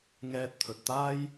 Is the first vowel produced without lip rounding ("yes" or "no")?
yes